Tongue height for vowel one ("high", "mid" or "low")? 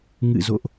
high